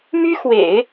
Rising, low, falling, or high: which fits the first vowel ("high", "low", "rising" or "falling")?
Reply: high